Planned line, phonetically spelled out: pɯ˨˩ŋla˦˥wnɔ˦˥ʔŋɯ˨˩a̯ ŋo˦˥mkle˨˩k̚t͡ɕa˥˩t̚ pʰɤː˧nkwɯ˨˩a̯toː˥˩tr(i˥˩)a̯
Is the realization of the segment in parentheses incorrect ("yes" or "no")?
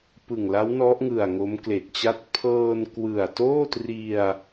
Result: yes